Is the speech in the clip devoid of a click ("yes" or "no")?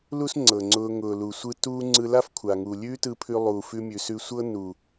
no